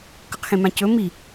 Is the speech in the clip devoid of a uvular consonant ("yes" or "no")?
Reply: no